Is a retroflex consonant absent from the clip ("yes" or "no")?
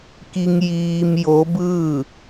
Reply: yes